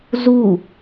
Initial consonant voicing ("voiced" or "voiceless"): voiced